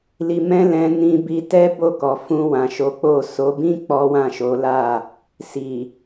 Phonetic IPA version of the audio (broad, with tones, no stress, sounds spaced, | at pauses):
l i˧ m ɛ̃˦ l ɛ̃˧ n ĩ˧ b i˧ t ɛ˦ b o˦˨ k ɔ˨ f ũ˧ w ã˨ ʃ o˨˦ k͡p o˦˨ s o˨˦ b ĩ˦ k͡p ɔ˦ w ã˦˨ ʃ o˨˦ l a˦˨ | s i˨